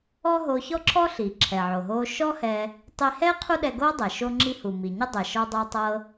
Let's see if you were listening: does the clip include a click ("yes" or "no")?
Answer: yes